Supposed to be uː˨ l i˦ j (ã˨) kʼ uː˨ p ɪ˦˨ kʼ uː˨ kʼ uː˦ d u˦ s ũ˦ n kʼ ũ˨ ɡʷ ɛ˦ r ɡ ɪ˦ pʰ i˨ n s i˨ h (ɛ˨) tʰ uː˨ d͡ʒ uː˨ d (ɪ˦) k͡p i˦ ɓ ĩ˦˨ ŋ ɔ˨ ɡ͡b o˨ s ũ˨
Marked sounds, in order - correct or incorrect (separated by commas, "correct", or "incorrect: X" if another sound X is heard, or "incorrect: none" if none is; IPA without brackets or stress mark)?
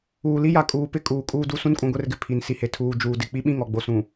incorrect: a˨, incorrect: e˨, incorrect: ɪ˨